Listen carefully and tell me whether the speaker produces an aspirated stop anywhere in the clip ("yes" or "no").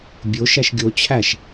yes